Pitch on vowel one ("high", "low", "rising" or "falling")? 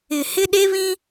low